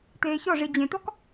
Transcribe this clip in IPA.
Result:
t̪eːçɔʐi d͡ʑẽt̪ɔk

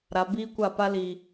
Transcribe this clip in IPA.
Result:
ɾa˨biː˦kʷa˦˨pa˦ li˨

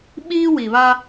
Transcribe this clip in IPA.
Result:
ɓiː˦wi˨βa˦

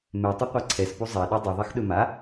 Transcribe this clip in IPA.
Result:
mɛtˤɘ qʷaǀʰɛspu zˤɛɗu dˤɵðˤɛx ɗɵma

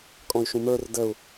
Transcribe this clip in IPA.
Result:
kʼɔ̃y̯ʃũmə˞r dəu̯

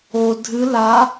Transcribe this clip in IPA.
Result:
o dʱɨ la

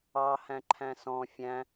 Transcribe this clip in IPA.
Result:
ɑhæ̃ ǃʰæ̃sɔ̃ fʲæ̃

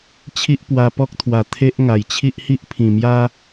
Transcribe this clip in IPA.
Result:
t͡ɕʰi˦ʔpwa˧pɔ˦k̚t̪ʰwa˨˩ t̪ʰe˦ʔ ŋa˨˩jt͡ɕʰi˦ʔhi˦ʔ pʰĩ˨˩ mja˦

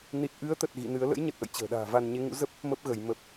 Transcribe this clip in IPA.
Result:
ni˨˩t̚ʔɨ˨˦ə̯t̪ə˨˩t̚ ɣḭ˧˨nɨ˨˦ə̯ lə̰˧˥jɲə˨˩t̚ʔə̰˧˨j t͡ɕə̤ː˨˩ɗa̤ː˨˩va˧n ɲe˨˦ŋṵ˧˥ zə˦˥p̚ | mə˦˥p̚ɣə˧˩j mə˨˩p̚

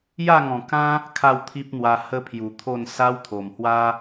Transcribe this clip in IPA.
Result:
ja˥˧ŋɔ̃˨˩kã˦ | kʰa˥˧wt̪ʰi˦p̚n̪wa˧ hə˦pʰju˨˩t̪ʰo˥˧n sa˦wt̪ʰo˨˩mhwa˦

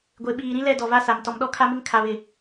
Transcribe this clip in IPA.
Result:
ɡʷe˨ɓiː˨ ɾĩ˦lɛ˦˨dɔ˨ va˦sa˨m tɔ˨mɗɔ˦ kʰa˦mɪ˦ŋ kʰa˨βɪ˨

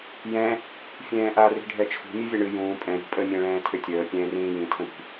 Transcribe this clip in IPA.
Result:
jɛ̃ | fʲɛ̃ːʔa ri̤ɖʱɛt͡ʃʰṳ mʲɨvʲaɳɨ jũː pʼɛ̃ ɾṳpʼə mʲɛ̃ɭɛ̃ːtʰʏtʲəː pʲɛ̃ːrĩːjĩ tʰə̃ɾi̤

